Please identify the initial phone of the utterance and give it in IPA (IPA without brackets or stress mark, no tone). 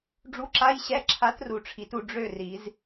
ɖ͡ʐ